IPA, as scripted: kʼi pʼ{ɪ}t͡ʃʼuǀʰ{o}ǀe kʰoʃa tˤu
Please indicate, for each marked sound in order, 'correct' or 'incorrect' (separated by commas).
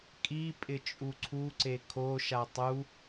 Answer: correct, incorrect